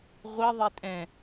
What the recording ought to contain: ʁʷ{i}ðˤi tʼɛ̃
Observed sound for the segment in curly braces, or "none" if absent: i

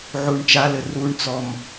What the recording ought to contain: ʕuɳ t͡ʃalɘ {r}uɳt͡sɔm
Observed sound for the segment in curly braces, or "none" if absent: r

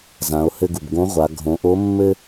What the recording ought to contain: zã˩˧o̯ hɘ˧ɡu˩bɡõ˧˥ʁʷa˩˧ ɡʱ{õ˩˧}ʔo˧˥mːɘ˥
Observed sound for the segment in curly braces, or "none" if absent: õ˩˧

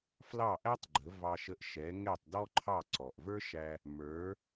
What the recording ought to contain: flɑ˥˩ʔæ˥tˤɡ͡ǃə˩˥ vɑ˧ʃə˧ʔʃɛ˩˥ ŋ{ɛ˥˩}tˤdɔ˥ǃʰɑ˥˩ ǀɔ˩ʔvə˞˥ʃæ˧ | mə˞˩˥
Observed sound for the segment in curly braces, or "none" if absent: ɛ˥˩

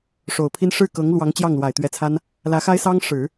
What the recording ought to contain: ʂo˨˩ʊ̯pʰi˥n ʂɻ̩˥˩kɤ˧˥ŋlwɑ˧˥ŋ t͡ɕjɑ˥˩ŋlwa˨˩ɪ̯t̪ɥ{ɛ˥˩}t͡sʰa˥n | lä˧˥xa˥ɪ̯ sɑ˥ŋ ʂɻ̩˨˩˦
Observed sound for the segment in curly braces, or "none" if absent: ɛ˧˥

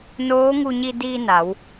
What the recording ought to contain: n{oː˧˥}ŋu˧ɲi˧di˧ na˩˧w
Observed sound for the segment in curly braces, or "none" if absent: oː˧˥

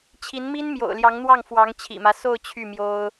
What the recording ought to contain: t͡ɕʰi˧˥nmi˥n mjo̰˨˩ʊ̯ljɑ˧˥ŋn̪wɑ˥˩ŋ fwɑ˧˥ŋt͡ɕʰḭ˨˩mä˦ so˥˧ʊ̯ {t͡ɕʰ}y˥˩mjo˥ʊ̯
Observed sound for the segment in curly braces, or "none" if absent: t͡ɕʰ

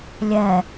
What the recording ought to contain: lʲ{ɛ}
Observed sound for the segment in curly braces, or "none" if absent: ɛ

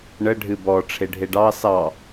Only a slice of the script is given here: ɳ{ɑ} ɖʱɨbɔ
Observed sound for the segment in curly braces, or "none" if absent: ə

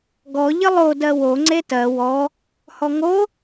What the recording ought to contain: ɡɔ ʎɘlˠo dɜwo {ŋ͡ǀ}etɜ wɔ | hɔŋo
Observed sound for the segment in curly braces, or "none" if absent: ŋ͡ǀ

